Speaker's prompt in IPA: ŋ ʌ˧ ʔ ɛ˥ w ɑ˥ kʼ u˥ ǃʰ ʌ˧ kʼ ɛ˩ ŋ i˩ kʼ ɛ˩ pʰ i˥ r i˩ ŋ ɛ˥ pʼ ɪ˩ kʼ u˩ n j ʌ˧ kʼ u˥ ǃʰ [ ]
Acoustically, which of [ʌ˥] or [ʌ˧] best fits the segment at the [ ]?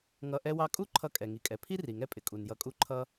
ʌ˥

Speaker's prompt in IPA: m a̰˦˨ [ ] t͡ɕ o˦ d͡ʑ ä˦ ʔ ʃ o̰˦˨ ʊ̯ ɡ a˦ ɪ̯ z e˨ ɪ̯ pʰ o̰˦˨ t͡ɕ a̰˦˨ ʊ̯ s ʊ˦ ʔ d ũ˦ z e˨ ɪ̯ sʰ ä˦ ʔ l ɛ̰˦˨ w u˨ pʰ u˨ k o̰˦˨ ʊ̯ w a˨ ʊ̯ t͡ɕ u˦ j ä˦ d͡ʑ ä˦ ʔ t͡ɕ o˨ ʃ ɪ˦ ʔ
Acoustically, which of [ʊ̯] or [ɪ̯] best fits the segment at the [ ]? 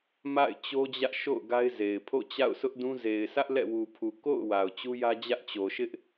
ɪ̯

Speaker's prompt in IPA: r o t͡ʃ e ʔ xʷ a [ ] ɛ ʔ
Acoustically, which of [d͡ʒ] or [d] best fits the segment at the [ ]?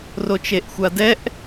d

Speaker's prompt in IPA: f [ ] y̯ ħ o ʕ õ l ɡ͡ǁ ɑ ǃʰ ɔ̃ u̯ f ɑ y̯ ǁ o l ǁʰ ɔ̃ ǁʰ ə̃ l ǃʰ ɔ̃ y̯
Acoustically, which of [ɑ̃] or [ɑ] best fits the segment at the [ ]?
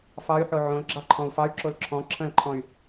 ɑ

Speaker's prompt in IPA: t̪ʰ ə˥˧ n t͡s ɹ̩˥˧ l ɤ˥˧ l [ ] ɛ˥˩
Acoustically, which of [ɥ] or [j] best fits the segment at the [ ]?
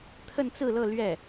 ɥ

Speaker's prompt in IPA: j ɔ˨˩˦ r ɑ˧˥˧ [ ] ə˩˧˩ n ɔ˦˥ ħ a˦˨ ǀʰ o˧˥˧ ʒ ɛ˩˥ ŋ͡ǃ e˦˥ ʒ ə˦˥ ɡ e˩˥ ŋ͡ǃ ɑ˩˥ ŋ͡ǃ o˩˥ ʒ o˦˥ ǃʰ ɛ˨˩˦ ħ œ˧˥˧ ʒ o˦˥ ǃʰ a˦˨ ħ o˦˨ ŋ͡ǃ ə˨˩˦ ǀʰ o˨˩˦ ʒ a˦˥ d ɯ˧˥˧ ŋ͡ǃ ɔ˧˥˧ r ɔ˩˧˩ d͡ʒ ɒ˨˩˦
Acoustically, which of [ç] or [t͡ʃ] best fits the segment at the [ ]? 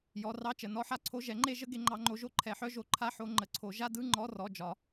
t͡ʃ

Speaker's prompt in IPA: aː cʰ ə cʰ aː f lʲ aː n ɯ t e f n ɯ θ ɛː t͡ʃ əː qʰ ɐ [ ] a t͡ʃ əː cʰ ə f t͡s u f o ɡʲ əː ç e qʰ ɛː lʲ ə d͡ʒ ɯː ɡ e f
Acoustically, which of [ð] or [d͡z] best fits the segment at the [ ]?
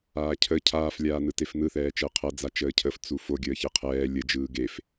d͡z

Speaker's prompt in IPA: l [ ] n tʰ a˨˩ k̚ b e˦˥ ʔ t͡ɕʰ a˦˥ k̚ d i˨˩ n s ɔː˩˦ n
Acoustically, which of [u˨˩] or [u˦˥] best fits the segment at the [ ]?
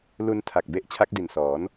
u˦˥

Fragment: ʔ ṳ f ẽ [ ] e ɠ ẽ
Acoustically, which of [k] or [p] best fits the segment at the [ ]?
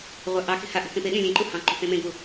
p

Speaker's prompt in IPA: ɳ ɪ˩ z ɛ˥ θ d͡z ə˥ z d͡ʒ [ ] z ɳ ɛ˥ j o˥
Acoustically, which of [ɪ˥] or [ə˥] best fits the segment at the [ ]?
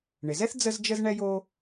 ə˥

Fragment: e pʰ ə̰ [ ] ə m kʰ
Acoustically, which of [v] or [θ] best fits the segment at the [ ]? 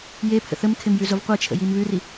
θ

